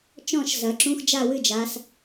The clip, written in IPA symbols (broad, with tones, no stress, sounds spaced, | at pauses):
t͡ʃ ɔ̃˥˨ ʃ z ɐ˩˧ ǁ ũ˧˥˧ x d͡ʒ a˥˨ w ɨ˥˨ d͡ʒ a˩˧ s